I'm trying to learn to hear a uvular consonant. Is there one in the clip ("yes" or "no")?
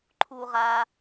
yes